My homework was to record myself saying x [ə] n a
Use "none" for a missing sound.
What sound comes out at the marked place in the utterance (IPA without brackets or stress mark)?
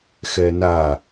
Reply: ɛ